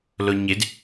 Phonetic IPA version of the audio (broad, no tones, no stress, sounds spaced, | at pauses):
l o ɲ ɪ d